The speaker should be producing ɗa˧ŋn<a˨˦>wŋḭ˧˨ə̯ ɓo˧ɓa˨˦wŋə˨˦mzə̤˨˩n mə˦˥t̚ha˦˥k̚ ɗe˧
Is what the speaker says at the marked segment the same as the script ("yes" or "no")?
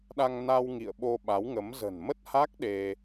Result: no